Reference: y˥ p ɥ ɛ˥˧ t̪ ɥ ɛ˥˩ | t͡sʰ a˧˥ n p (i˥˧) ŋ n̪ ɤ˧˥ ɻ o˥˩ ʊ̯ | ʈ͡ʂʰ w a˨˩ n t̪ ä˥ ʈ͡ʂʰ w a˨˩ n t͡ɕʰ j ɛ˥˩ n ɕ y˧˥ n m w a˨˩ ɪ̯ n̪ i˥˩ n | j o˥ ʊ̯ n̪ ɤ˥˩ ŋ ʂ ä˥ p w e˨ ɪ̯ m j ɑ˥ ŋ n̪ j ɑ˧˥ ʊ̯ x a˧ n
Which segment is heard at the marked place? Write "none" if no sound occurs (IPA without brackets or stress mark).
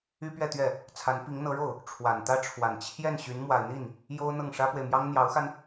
i˧˥